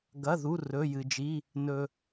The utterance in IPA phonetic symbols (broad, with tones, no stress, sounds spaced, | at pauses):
ɡ ɐ˩˧˩ ð u˩˧˩ r ɵ˩˧˩ j ɨ˩ d͡ʒ i˩˧˩ | n ɵ˩